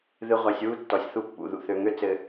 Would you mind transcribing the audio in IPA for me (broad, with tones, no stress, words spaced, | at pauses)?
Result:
ðɨ˨ʁʷæ˨sʲ wu˦tːɔ˨sʲθu˦˨ pːṵ˨ ðṵ˨θø˨ŋø˦ t͡sɘ˨